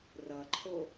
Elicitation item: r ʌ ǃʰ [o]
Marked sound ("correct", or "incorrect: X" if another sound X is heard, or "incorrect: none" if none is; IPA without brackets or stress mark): correct